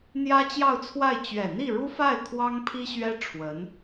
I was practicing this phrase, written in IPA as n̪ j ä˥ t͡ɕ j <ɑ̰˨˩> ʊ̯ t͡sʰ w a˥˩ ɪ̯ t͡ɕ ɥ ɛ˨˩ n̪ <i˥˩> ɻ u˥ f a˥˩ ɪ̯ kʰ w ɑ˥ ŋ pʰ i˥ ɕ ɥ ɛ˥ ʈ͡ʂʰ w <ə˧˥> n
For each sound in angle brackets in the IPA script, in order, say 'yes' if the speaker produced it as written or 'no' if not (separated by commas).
no, yes, yes